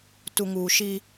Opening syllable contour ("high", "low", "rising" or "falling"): low